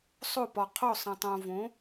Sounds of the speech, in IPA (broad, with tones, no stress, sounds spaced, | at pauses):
sˤ o˥˨ p ɒ˨ qʰ o˥˨ sˤ ə̃˨ tˤ õ˨ v õ˩˥